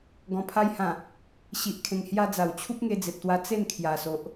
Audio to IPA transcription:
ɡ ɔ̃˨˩ pʰ a˧ j h ã˨˩ | ɕ i˨ ʔ kʰ ẽ˨˩ ŋ h j a˧ d͡z a˨˩ w t͡ɕʰ u˦ p̚ ŋ e˧ d͡z e˨ p̚ t̪ w a˧ t͡s e˥˧ n kʰ j a˨˩ s o˨ ʔ

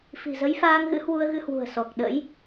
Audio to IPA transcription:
f i̤˨˩ z ə˨˦ j f aː˧ ŋ ɣ ɨ̰˧˥ h w u˧ ə̯ ɣ ɨ˧ h w ṳ˨˩ ə̯ s ɔ˨˩ k̚ ɗ ə̰˧˥ j

